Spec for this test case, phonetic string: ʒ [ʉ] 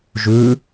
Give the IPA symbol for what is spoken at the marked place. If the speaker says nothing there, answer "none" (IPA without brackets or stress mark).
ʉ